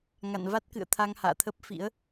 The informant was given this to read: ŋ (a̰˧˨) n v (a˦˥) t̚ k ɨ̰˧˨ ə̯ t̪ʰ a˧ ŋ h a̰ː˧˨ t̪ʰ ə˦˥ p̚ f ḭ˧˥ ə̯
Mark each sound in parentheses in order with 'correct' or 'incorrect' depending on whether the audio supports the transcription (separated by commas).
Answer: correct, correct